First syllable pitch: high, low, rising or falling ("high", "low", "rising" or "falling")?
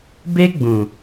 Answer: high